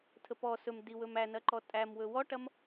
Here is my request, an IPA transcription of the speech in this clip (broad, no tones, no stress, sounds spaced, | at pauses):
tʰ ə p ɔ s ɵ m d i w ɵ m æ n ɐ ǃ ɔ tʼ æ m w ɵ w ɔ ʈ ɐ m